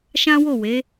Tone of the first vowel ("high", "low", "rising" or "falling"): high